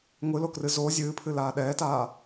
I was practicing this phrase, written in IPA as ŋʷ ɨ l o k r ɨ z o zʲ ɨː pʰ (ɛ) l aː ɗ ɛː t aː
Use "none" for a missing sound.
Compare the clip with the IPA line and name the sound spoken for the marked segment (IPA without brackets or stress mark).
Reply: ɨ